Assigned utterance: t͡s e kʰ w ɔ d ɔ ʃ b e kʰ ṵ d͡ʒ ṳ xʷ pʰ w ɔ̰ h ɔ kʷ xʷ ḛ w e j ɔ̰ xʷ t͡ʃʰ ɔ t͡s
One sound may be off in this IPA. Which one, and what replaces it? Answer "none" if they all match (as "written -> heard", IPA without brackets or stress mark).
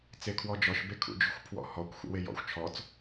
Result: d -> d͡ʒ